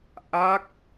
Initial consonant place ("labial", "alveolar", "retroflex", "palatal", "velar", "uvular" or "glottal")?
glottal